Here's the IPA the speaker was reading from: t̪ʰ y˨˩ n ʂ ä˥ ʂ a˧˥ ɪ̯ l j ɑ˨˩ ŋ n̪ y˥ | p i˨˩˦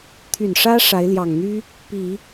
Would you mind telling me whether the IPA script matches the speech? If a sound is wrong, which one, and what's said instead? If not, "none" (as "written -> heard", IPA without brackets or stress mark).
none